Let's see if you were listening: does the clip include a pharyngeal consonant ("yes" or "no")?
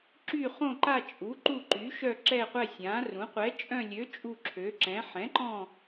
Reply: yes